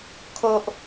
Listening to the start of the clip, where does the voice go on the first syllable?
high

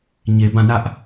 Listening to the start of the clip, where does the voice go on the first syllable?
low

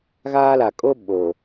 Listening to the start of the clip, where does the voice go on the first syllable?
high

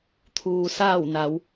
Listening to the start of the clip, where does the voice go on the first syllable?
low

